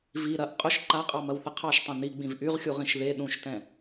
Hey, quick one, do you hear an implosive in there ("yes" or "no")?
yes